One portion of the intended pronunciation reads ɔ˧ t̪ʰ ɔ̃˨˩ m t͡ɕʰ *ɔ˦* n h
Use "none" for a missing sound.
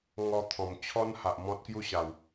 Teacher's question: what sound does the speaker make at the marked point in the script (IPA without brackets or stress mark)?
ɔ˦